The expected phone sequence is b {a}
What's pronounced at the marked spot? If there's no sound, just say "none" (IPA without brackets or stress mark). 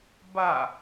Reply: a